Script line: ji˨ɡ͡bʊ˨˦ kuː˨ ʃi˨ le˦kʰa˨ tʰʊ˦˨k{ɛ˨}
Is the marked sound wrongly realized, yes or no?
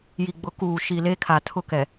no